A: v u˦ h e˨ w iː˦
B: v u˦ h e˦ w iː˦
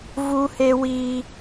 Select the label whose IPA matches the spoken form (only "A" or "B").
B